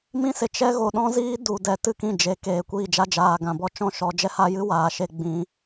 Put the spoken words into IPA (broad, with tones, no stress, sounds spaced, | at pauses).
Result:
m ĩ˦ s e˨ t͡ʃ ɛ˦ ɣ o˨ ɗ ɔ̃˦ z iː˦ d u˨ d ɛ˨ t ɨ˦˨ k ĩ˦˨ d͡ʒ e˨˦ k eː˨ kʷ iː˦˨ d͡ʒ a˦ d͡ʒ aː˨ ɡ ã˨ b ɔ˦ t͡ʃ ɔ̃˦ ʃ ɔ˨˦ d͡ʒ ɛ˦ h a˦ j ɨ˦ w aː˨ ʃ e˦ ɡ͡b ĩ˨˦